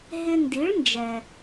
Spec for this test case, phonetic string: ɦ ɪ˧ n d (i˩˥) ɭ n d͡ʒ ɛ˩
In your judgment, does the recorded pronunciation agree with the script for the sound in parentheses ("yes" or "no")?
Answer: yes